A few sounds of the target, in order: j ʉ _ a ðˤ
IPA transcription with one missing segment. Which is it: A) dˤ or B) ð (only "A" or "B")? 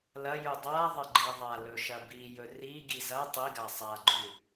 A